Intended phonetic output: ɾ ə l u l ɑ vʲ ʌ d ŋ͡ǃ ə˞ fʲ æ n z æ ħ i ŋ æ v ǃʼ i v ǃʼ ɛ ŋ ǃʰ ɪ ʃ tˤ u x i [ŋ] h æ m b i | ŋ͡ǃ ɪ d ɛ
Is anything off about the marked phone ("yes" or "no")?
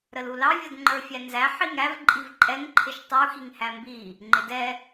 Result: no